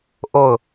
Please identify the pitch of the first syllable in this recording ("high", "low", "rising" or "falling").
falling